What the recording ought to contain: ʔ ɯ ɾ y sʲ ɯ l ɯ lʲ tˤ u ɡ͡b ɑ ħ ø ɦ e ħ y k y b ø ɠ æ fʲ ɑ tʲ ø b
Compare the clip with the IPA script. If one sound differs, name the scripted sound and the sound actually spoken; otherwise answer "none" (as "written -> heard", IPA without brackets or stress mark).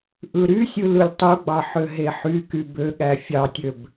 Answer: none